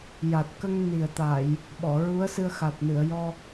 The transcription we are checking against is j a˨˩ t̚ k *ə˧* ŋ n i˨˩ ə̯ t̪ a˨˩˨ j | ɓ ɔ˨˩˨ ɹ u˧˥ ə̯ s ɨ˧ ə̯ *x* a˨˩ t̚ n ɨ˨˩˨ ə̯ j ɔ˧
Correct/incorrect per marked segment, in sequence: correct, correct

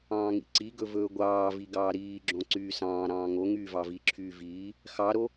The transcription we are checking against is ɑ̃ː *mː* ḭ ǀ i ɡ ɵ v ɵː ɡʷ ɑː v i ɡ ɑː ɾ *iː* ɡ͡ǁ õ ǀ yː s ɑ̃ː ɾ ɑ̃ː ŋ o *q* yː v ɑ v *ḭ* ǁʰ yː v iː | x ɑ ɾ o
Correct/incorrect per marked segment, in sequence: incorrect, correct, incorrect, incorrect

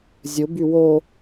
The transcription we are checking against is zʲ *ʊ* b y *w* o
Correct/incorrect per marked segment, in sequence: correct, correct

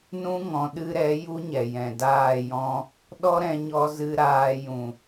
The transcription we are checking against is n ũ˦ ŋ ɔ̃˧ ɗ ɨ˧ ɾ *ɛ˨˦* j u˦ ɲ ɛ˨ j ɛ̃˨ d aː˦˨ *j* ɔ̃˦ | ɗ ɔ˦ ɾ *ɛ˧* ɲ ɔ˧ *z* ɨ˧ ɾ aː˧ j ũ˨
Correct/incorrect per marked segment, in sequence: correct, correct, incorrect, correct

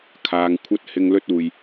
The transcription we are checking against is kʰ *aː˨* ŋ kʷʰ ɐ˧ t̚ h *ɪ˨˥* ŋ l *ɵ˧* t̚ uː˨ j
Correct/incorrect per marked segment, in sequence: correct, incorrect, correct

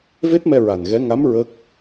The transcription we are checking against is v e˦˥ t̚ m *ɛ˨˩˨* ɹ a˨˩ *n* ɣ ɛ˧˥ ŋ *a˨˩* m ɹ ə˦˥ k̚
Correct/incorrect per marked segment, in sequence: incorrect, correct, incorrect

